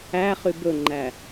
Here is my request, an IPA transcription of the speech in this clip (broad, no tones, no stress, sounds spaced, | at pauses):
æ χ y b ɵ ŋ͡ǃ æ